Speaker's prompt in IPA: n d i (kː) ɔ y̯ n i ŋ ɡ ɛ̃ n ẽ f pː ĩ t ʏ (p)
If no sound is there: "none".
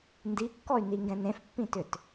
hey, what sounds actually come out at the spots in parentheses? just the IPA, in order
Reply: kː, t

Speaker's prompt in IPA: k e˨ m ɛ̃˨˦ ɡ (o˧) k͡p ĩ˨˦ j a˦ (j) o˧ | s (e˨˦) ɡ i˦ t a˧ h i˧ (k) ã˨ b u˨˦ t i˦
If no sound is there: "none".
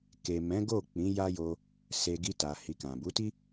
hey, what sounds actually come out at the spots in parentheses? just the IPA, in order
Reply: o˦˨, j, e˧, k

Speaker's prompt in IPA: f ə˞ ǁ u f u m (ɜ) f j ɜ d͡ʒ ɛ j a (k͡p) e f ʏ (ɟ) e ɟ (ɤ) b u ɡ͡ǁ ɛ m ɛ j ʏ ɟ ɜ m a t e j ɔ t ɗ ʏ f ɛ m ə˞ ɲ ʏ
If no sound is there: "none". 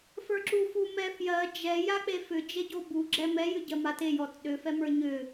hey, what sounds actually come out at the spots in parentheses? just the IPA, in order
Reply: ɛ, k͡p, d͡ʒ, o

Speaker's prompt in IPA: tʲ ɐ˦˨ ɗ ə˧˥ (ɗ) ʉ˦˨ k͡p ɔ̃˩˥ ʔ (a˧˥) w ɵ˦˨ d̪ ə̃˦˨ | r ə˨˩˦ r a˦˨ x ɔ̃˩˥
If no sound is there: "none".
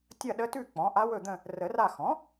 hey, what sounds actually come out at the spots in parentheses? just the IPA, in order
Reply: t, a˧˥

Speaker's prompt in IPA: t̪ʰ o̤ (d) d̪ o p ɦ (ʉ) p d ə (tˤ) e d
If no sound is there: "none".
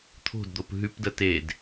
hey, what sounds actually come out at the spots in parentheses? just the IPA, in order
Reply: d, ʉ, t

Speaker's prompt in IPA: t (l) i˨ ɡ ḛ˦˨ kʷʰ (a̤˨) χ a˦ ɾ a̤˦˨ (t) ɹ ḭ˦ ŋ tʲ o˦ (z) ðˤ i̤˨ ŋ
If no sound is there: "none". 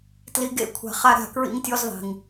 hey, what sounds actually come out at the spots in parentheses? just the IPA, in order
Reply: l, a̤˨, k, z

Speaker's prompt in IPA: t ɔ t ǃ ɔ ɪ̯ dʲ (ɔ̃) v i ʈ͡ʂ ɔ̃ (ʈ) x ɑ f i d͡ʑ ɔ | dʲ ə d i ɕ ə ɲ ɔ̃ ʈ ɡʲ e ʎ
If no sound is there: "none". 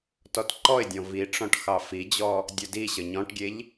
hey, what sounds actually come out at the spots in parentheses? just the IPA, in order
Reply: ɔ̃, ʈ

